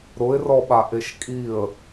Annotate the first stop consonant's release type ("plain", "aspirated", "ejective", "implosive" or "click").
implosive